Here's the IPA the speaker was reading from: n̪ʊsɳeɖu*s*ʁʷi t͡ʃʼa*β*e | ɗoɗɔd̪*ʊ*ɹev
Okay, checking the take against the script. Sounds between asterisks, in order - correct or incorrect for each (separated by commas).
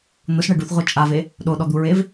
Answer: incorrect, incorrect, incorrect